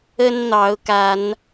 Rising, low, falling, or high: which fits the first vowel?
high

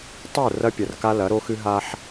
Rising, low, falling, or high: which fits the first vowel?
falling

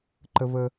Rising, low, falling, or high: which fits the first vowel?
high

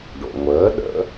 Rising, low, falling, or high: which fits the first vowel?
low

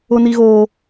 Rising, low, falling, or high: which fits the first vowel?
high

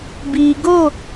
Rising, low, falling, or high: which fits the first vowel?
low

